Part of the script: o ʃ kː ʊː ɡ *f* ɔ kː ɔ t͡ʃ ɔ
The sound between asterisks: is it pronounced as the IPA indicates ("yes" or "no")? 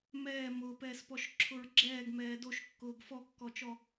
yes